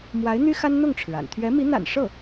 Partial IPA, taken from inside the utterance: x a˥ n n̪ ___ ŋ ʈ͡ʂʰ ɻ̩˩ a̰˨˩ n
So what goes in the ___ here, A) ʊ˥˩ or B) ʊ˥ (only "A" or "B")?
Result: A